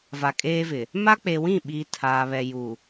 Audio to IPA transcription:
va˨kʼeː˦vɪ˨ | ma˦k͡pe˨ wĩ˦˨ɓiː˨ tʰaː˨ βɛ˨ju˨

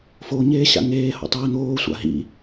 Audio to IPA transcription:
foɲeː ɕa̰ŋeːho̰ tˤiːn̪oːsʷa̰ ɦḭ

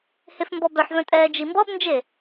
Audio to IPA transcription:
hefmbɔbœħvœ̃ tʼɛːd͡ʒimbɔbnd͡ʒe

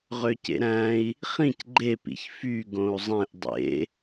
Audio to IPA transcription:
ʁøcḛɾæ̃i̯ | χĩc ɡ͡ǃepḭç fy ɡõu̯zˤẽʔ dˤḛ

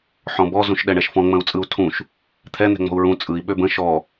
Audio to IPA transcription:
ħɔ̃bɔ zũʃɗɛɳɛʃfɔ̃ ŋ͡mə̃u̯t͡sʼɯu̯tʰũʃ | t̪ʰɛ n̪ɛ̤ŋ͡mɔ̤u̯ɹũ t͡sʼɯi̯ ɓøbə̃ ʃɔ

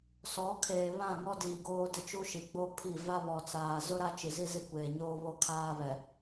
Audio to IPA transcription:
sɔ˨˦ kʰeː˨βã˦˨ŋɔ˦diː˨ ɡoː˦dɪ˦t͡ʃu˦ʃi˨ ɡ͡bo˦pʰi˦˨ va˦βɔ˨t͡saː˨ zʊ˦ ɾa˦t͡ʃi˨zi˦ zi˦˨kʷeː˨ɲoː˦ βo˦kʰaː˦βɛ˨

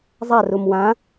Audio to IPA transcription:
zˤar umwã

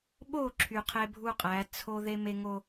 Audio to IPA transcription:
ɓo˦˨ǁʰy˨ qʰe˦bʱu˦qʼæ˨˦ t͡sʰo˦ ðe˦me˦ ŋo˦

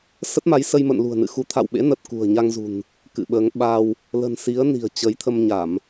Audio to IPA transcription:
sə˦˥t̚ma˨˦jsə˧jmə̰˧˨n lṳ˨˩ə̯nɨ̰˧˨ xu˨˦ t̪ʰa̰˧˨wɓḛ˧˥nə˨˩t̚ kṳ˨˩ə̯ɲa˧ŋzṳ˨˩n | kɨ̰˧˨ɓəː˨˦ŋ ɓa˧w | lə̤˨˩n si˨˦ə̯ni̤˨˩ə̯ t͡ɕə˨˦j t̪ʰə˧mɲa˧˩˨m

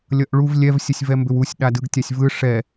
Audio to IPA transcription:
lʲʌʔɭuv lʲɛv sʲəsʲvɛmbʏwusʲ ɗadɯɡtʲasʲvɯ ʂɛ

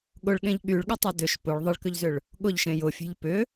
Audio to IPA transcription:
ɠʊɭɠẽʎ ɠyɭɠɪtˤʊ dʏʃ pʊɭ ðˤɪɭkʏʎzʏɭ | ɠʊʎʃẽ jʊfʲe̤ʎ pʏ

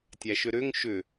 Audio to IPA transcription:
tʲæʃʏɾʏŋ ʃʏ

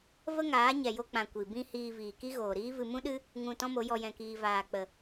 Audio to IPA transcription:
və˦ŋaː˨˦ ɲɛ˨jo˧k͡pã˨ kʷi˨ bĩ˧ hiː˧viː˨ki˦ ɣoː˨ɾiː˦vɨ˧ mũ˦ɗɨ˦ | ŋũ˨ tɔ̃˦mo˨˦jɔ˧ jɛ̃˧kiː˧ vaː˨k͡pə˨

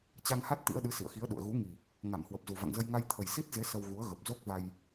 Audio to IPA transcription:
t͡ɕa˧ŋha˦˥t̚ t̪ḭ˧˥ə̯ɗɨ˨˦ sḭ˧˨ə̯xi˨˦ə̯ɗṵ˧˨ə̯ ɣu˨˦ŋi˨˩ | ŋa˧˩mhwə˨˩p̚zu˨˩ va̰˧˨ŋzə˧j ŋa˧j t̪ʰə˨˩j si˦˥t̚ze˨˦ sə˧wɣu˨˦ə̯ ɣə˨˩p̚zo˦˥k̚va˧j

